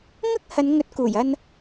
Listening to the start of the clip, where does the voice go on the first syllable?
high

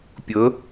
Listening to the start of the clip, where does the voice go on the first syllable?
rising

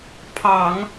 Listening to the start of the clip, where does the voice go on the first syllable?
low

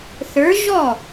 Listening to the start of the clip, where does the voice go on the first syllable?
rising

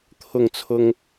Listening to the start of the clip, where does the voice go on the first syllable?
falling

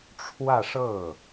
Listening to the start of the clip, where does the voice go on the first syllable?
falling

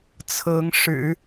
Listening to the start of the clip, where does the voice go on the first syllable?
rising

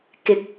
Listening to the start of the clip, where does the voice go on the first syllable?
low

